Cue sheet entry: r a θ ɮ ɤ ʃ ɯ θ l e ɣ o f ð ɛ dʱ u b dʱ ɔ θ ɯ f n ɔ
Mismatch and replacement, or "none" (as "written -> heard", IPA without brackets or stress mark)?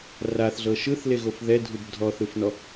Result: none